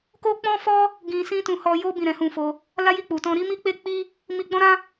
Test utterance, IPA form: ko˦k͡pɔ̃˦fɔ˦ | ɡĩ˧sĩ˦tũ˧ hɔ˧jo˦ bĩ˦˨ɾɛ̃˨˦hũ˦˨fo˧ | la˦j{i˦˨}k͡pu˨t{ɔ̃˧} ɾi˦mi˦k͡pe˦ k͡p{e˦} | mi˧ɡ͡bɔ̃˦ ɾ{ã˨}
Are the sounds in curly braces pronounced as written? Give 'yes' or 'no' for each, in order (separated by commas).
yes, yes, no, no